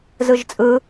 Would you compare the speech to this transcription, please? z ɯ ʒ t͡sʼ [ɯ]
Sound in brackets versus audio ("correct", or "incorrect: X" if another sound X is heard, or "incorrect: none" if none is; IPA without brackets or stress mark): correct